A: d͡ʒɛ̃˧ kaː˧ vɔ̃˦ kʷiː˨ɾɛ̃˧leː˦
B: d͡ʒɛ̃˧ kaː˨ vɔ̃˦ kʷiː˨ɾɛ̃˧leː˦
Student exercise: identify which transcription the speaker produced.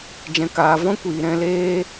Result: B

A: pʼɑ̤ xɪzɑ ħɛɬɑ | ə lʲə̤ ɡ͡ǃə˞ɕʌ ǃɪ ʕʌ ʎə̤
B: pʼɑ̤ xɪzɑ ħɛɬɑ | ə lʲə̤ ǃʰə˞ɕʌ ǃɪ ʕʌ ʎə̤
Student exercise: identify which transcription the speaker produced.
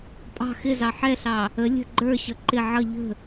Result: A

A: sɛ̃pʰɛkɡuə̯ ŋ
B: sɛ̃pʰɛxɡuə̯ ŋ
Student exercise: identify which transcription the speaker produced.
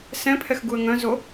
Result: B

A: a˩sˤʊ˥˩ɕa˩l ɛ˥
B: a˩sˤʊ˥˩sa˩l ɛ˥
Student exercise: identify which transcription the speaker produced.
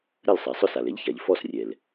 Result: B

